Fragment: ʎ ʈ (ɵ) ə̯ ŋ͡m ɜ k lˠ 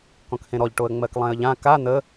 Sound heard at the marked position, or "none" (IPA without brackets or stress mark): o